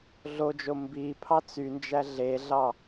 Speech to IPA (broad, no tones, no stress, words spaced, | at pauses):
ɮod͡ʒo mbipʰɑ t͡synd͡ʒæ ɮeɮɑ